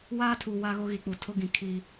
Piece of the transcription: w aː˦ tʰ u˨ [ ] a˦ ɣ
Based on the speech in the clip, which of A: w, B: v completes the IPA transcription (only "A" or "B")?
A